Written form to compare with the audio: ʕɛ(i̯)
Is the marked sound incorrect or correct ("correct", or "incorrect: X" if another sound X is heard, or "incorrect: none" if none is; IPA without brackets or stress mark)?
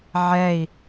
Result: correct